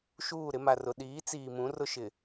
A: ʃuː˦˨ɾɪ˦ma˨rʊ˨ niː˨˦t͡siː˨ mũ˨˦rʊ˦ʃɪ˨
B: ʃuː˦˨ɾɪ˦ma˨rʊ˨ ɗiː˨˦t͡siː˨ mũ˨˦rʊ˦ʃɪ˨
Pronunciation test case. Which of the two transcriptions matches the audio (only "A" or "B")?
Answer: B